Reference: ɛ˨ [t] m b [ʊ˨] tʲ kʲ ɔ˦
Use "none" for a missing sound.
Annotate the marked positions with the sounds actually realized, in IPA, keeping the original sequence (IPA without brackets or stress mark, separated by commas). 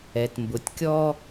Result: t, ʊ˨